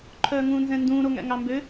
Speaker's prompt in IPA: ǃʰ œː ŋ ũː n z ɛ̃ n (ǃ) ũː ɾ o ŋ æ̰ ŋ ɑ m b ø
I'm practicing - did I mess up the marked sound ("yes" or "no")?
yes